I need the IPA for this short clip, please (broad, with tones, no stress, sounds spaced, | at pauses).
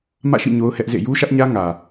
m ä̰˦˨ ʃ ḭ˦˨ ɲ o˦ ʊ̯ h ɛ˦ ʔ z ḛ˦˨ j u˦ ʃ ä˦ ʔ ɲ ä˦ ŋ ä˨